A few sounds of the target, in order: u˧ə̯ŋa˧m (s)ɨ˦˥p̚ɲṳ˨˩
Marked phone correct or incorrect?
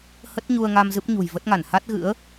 incorrect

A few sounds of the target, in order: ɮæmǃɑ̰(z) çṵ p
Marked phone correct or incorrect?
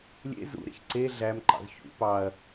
correct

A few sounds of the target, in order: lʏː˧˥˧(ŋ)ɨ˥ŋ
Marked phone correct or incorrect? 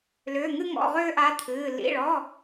correct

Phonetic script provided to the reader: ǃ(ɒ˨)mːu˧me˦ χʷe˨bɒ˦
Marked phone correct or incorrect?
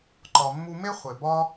correct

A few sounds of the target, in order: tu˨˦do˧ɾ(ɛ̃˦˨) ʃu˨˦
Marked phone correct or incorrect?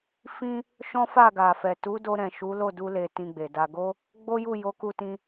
incorrect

